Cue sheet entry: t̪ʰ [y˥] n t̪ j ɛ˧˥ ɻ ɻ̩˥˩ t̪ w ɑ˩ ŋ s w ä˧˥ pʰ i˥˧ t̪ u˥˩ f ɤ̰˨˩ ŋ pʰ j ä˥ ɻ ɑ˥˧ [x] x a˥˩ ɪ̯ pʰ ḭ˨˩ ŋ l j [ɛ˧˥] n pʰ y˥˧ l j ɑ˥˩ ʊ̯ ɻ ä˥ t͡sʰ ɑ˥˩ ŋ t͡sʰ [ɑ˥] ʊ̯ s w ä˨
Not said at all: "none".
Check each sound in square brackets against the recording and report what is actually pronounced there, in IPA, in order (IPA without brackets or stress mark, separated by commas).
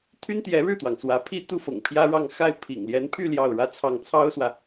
y˥, ŋ, ɛ˧˥, ɑ˥